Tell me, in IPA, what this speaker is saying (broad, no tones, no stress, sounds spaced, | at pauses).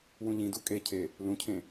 w ũ ʎ ĩ d u kʼ e cʰ e | l ũ cʰ ẽ